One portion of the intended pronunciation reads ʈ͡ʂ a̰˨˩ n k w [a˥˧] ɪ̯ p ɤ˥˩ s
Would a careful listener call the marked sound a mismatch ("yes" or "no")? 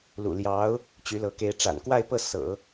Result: no